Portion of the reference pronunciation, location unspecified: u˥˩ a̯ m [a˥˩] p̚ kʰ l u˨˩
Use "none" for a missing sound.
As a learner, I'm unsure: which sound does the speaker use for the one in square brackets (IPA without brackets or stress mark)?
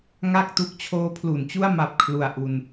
a˨˩